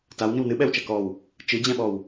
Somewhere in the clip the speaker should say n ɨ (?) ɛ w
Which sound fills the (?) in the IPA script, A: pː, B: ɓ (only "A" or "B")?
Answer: B